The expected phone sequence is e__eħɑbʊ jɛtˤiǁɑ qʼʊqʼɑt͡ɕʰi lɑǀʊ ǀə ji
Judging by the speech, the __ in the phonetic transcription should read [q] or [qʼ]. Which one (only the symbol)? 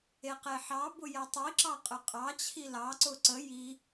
q